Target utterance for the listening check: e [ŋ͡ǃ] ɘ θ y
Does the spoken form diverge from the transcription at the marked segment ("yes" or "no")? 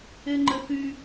no